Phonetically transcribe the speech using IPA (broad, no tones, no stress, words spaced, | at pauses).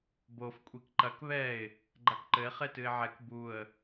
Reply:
bof kʷʼikǃɐk βɛɪ̯ | ɡ͡ǃakǃɘɪ̯ χetɨɪ̯ʕɛk buə̯